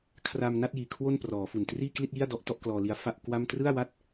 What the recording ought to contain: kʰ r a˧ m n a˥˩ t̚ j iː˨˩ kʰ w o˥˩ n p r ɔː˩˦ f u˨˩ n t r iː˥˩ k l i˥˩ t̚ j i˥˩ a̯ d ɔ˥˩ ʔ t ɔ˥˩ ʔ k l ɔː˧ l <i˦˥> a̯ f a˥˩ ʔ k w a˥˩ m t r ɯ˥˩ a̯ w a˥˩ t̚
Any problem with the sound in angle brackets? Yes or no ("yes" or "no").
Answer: no